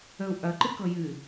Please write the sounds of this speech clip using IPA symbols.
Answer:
ə u̯ ʔ ɐ ǃ ɨ k ɤ j ɨ

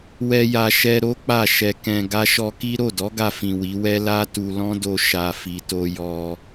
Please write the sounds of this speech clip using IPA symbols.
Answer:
w ɛ˧ j a˧ ʃ ɛ˧ ɾ o˦ k͡p a˦˨ ʃ ɛ˧ k ɛ̃˧ ɡ a˧ ʃ ɔ˧ k i˦ ɾ o˦˨ d ɔ˨˦ ɡ a˧ f ĩ˨ w i˨˦ w ɛ˦ l a˦ t u˧ l ɔ̃˦ d o˧ ʃ a˨ f i˨ t o˧ j ɔ˧

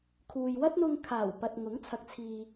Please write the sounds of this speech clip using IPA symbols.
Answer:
kʰ uː˨ j w ɐ˥ t̚ n̪ ʊ˧ ŋ kʰ aː˨˩ w p ɐ˨ t̚ ŋ ʊ˨˥ ŋ t͡sʰ ɐ˧ k̚ t͡sʰ iː˧

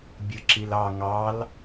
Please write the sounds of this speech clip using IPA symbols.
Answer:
bʲ ɯ ǁ i l ɑ ŋ ɑ l

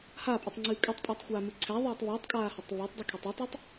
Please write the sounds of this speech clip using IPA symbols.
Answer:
h a pʼ u tˤ ŋ͡ǀ ɨː kʼ ɨ tˤ pʼ æ tˤ xʷ aː m ɨ ǀʰ æ ðˤ ɛː tˤ β ɨː tˤ kʼ aː h u tˤ β a tˤ dˤ u kʰ ɛ tˤ u tˤ u tˤ

